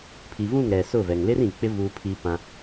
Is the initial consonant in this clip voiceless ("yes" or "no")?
yes